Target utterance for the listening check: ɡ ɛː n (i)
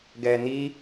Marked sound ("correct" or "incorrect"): correct